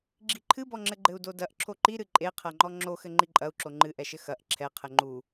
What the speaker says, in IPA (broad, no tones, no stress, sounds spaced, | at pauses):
ɡ͡ǁ i ǃʰ ɨ b ɔ ŋ͡ǁ ɘ ɡ͡ǃ ɘ u̯ d o d ɐ ʔ ǁʰ o ǃ i ɾ ɨ ǃʼ e qʰ ɐ ŋ͡ǃ ɔ ŋ͡ǁ o x ɘ ŋ͡ǃ i ǃʼ ɐ u̯ ǁ o ŋ͡ǃ ɨ ʔ ɛ ʃ ɘ x ɐ ʔ ǁʰ ɛ qʰ ɘ ŋ͡ǃ u